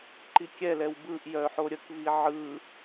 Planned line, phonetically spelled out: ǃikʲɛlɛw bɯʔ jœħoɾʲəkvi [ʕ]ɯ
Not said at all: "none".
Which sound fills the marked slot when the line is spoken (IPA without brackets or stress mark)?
ʕ